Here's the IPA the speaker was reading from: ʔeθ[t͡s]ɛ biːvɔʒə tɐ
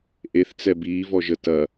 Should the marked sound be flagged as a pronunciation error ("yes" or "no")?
no